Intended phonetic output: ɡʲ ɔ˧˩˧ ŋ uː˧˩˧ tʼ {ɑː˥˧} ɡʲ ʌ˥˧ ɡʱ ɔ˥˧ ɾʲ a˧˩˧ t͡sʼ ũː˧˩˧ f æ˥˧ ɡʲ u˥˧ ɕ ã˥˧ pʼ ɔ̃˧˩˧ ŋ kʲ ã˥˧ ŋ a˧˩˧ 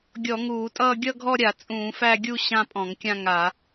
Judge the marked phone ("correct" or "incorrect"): incorrect